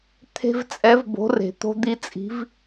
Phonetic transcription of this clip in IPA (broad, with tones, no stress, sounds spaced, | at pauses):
t̪ʰ e̤˦ v t͡sʼ ɛ˨˥ v b o̤˨˥ r e̤˨˩ t̪ o̤˦ d̪ i˦ t͡sʼ i̤˨˥ v